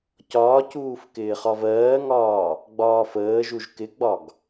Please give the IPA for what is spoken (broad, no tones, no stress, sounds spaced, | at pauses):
c ɒː c uː f k ɪː χ ɒ v ɜː ŋ ɒː | ɡ͡b ɒː f əː ʒ u ʒ k ɪ ɡ͡b ɒ ɡ